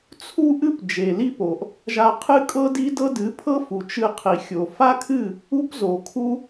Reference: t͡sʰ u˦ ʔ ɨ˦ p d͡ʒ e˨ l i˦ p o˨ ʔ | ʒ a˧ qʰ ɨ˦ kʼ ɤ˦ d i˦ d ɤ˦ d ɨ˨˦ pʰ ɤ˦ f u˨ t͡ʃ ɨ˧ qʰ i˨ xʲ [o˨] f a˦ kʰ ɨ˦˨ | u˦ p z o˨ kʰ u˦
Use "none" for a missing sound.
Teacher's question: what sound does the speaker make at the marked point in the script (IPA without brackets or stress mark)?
o˨